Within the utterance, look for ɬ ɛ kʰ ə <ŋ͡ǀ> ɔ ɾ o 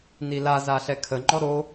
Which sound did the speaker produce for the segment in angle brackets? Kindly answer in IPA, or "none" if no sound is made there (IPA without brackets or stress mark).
ŋ͡ǃ